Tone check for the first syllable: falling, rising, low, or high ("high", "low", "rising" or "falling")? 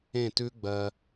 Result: falling